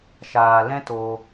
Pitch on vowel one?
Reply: low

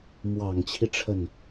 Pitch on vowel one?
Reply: low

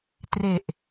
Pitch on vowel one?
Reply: low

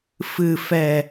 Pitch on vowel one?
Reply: low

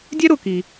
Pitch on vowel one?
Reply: high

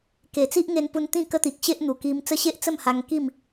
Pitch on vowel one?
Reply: low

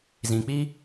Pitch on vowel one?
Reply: low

